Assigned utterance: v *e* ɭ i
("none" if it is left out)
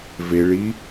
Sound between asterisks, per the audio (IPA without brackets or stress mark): e